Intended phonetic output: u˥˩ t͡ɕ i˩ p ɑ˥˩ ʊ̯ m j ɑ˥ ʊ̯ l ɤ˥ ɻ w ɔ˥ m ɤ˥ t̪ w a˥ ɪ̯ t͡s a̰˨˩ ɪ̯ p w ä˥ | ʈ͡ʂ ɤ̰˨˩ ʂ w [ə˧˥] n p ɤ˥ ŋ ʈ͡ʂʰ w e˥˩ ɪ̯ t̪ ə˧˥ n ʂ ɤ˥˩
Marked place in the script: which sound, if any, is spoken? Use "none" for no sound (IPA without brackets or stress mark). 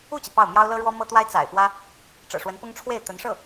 ə˧˥